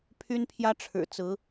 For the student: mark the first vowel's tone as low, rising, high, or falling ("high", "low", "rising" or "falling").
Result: high